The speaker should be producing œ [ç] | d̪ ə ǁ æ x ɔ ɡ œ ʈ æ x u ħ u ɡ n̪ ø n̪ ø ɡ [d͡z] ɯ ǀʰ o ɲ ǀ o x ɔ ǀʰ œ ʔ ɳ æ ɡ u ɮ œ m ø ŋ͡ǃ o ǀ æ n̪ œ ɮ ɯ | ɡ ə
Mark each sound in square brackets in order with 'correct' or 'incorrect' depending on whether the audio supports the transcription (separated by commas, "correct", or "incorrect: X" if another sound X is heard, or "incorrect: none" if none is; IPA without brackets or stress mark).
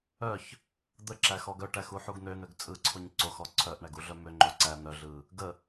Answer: correct, incorrect: t͡sʼ